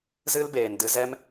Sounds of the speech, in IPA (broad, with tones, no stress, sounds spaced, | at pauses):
z ɨ˦ l b eː˨ n d ɨ˧ z ɛ˦ m